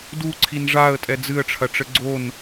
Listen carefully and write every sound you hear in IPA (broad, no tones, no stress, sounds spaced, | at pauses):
d u ǀʰ i n ʐ a ə̯ tʼ ɛ d͡z ɨ ə̯ ʈ͡ʂʰ ɐ ʈ͡ʂ ɘ ɡ͡ǀ o n